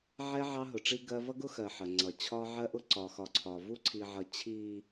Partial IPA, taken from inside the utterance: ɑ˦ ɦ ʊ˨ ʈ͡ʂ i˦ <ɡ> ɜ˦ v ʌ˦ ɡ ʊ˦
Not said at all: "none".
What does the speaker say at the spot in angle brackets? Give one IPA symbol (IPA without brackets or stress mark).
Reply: ɡ